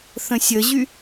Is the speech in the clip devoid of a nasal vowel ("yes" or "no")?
no